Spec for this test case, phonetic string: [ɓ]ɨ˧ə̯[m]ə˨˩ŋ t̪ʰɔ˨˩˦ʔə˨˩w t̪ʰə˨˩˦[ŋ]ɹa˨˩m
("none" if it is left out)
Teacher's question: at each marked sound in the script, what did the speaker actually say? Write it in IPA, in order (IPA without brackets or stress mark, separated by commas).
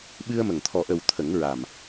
ɓ, m, ŋ